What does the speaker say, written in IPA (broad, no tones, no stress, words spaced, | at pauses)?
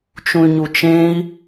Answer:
t͡ʃũy̯ɲut͡ʃẽi̯